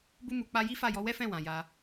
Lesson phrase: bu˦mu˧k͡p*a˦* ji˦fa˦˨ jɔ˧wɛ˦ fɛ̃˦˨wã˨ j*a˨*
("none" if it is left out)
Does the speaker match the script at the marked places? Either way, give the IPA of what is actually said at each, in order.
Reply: a˦, a˧

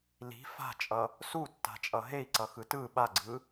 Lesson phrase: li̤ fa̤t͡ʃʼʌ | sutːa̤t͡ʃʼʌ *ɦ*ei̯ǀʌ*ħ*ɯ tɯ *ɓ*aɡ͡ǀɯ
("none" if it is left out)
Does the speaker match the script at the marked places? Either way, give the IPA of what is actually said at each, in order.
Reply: ɦ, x, ɓ

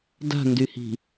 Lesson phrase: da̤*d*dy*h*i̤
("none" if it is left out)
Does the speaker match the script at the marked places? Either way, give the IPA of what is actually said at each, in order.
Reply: n, h

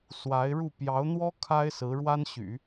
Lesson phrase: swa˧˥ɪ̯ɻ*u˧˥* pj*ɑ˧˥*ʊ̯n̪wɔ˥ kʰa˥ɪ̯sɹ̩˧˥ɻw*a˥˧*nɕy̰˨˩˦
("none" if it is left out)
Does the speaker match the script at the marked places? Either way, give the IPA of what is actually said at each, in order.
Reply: u˥˩, ɑ˧˥, a˥

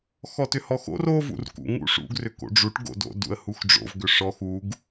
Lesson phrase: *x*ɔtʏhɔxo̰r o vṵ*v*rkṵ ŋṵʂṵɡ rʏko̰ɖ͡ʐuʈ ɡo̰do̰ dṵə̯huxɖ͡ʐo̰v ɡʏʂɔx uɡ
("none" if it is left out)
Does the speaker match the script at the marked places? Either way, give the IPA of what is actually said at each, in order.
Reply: x, none

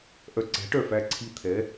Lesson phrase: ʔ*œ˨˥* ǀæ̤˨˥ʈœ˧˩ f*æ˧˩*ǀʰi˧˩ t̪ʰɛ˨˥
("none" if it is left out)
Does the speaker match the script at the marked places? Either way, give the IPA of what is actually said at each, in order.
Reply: œ˧˩, æ˧˩

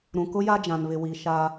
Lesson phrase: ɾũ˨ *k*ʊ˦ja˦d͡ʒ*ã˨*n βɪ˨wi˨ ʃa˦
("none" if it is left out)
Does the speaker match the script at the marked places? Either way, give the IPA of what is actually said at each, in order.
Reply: k, ã˨

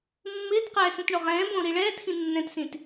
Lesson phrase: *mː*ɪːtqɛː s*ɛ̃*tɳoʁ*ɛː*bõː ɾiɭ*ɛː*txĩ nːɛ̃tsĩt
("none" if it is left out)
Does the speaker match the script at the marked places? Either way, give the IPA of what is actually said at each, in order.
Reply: mː, ɛ̃, ɛ̃ː, ɛː

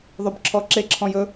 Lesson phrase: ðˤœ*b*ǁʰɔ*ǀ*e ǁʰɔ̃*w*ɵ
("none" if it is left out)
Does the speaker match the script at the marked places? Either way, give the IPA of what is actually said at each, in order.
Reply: b, ǁ, j

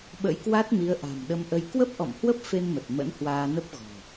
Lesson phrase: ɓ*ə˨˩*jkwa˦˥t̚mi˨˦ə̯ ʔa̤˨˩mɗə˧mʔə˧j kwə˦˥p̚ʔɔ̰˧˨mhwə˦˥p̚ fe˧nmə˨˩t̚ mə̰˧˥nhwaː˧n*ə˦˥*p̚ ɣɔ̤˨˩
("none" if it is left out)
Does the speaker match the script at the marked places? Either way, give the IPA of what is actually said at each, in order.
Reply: ə̰˧˥, ə˦˥

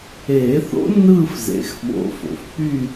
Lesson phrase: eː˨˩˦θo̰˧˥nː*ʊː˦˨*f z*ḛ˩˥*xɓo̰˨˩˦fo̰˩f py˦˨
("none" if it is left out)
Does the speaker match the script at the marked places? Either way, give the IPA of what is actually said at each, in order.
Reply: ɯː˦˨, ḛ˩˥

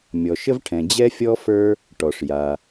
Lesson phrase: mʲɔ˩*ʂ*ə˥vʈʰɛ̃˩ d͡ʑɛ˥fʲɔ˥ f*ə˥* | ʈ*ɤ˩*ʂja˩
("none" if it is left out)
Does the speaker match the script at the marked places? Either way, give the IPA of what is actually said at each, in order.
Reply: ʃ, ə˞˥, ɔ˩

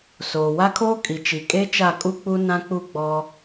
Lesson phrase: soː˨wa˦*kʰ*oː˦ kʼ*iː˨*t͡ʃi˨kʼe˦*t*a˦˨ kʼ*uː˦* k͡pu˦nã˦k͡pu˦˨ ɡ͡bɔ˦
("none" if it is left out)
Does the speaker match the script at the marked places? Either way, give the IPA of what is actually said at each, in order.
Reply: kʰ, i˨, t͡ʃ, u˦

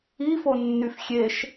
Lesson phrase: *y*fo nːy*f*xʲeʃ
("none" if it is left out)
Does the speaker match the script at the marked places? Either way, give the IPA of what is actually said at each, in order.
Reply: i, f

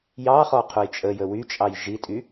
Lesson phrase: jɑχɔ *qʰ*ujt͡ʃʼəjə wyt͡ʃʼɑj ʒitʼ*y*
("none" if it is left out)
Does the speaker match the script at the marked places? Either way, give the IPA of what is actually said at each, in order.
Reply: qʰ, y

